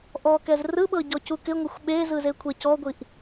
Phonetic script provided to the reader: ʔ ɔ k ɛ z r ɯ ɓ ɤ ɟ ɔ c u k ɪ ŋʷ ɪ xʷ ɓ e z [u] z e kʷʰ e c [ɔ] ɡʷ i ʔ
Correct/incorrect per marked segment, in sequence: incorrect: ɯ, correct

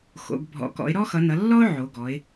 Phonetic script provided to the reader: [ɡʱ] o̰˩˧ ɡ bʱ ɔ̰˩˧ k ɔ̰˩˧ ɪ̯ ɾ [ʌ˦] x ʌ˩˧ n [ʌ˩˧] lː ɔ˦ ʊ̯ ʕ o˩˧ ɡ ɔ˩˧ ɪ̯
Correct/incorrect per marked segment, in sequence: incorrect: x, incorrect: ɔ˦, correct

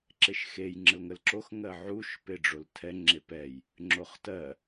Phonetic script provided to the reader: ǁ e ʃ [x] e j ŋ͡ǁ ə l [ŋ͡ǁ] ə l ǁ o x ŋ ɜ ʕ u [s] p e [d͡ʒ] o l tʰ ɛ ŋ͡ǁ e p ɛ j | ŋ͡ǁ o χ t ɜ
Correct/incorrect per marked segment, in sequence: correct, incorrect: ŋ, incorrect: ʃ, incorrect: ɖ͡ʐ

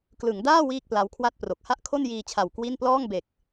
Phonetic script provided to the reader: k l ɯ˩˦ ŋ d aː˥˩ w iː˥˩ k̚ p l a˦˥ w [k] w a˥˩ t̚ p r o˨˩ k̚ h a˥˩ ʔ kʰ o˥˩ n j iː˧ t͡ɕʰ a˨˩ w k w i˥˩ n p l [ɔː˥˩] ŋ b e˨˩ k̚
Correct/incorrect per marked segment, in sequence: incorrect: kʰ, correct

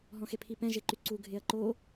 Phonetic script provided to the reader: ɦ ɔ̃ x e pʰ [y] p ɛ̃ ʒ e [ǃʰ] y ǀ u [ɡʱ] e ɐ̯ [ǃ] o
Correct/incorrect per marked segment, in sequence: incorrect: i, incorrect: ǃ, correct, correct

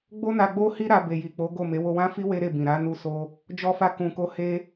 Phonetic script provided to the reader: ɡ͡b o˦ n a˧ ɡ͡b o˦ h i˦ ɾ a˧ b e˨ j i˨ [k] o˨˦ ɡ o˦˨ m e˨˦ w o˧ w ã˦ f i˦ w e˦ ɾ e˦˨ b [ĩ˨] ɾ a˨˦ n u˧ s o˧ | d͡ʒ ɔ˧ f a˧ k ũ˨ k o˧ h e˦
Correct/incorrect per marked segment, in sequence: incorrect: k͡p, correct

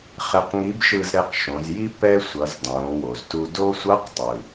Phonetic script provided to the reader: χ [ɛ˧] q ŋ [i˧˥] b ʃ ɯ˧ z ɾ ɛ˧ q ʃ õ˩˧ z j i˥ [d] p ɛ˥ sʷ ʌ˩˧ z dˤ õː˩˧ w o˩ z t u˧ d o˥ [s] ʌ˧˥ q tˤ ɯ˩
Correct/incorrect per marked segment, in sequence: correct, correct, incorrect: none, incorrect: sʷ

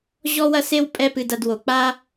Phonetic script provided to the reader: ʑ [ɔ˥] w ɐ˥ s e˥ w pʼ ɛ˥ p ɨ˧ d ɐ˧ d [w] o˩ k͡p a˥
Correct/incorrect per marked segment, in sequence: correct, correct

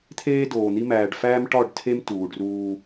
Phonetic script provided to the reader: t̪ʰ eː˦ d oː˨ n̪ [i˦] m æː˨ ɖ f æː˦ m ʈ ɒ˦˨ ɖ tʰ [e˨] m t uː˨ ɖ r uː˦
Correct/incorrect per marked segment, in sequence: correct, incorrect: e˦

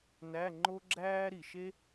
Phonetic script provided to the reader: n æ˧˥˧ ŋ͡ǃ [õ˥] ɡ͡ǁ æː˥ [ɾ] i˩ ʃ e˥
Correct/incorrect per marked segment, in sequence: incorrect: o˥, correct

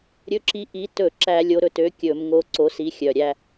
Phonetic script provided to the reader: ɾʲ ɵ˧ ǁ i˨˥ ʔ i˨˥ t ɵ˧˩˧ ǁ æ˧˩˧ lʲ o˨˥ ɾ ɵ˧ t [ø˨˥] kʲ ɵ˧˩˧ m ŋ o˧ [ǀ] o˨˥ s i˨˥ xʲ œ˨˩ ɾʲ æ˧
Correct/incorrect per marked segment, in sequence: correct, correct

